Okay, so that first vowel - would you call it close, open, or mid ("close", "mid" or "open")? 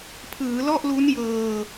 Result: close